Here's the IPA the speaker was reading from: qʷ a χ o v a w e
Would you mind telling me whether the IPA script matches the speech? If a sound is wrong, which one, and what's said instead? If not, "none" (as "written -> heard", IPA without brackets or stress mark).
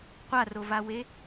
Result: χ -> r